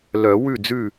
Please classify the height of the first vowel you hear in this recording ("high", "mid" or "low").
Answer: mid